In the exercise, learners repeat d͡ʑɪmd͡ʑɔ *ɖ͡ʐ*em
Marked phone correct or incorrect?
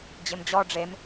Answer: correct